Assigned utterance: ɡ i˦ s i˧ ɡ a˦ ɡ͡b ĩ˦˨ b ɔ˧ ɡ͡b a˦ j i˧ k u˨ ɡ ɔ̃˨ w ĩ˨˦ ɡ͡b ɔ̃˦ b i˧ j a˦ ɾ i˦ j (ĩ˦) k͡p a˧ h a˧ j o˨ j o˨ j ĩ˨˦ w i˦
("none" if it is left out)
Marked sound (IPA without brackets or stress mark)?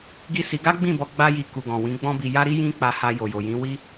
ĩ˦